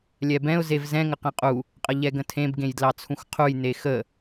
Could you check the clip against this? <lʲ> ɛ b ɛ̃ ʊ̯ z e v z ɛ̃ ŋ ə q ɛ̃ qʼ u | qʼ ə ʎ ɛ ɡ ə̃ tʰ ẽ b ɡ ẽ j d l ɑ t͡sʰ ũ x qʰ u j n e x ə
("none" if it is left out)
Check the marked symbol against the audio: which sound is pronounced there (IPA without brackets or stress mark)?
lʲ